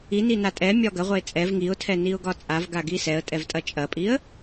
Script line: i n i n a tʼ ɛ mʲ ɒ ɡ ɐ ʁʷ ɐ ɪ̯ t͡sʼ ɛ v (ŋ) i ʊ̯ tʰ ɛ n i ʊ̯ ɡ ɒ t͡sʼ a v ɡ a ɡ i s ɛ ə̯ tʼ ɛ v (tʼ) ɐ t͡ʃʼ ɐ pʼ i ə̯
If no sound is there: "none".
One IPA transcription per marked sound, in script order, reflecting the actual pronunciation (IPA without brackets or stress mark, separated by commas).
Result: ŋ, tʼ